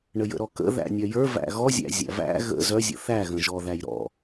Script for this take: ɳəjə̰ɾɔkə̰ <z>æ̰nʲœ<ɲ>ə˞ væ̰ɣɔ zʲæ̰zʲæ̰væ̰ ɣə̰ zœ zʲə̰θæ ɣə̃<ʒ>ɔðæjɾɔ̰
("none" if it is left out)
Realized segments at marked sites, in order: ð, j, ʒ

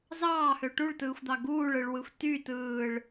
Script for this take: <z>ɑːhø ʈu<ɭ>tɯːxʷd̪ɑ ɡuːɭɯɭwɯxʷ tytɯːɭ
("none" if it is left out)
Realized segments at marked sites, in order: z, ɭ

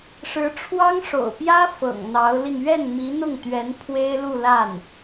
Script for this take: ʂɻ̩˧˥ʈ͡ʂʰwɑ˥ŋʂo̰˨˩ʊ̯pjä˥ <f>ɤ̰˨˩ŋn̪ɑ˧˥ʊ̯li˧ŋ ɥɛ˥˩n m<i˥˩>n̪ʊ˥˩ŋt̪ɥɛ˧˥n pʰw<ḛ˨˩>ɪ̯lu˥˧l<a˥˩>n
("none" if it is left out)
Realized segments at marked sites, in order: f, i˧˥, e˥, a˥˩

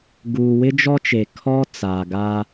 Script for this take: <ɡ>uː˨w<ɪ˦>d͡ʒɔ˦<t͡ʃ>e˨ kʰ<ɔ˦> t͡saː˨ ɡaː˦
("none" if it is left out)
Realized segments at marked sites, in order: ɡ, ɪ˦, t͡ʃ, ɔ˦

